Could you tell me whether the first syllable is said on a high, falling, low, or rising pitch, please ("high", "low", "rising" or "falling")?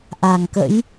low